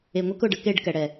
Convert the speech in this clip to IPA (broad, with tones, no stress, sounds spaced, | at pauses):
e˨ ŋʷ ɛ˦ k ʊ˨ ɖ ə˧ k e˦˨ ɖ k ɛ˨ ɽ ɛ˨